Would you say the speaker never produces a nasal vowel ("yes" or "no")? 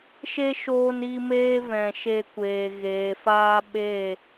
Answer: no